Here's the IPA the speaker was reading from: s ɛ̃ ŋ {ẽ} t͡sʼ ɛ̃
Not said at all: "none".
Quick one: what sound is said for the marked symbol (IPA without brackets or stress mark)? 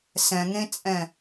ẽ